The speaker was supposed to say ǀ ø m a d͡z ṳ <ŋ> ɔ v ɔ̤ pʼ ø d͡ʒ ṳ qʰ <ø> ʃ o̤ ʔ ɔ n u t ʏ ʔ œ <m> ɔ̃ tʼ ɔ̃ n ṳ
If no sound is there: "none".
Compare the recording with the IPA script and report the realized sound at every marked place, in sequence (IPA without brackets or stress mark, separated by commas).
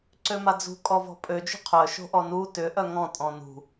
kʼ, œ, ŋ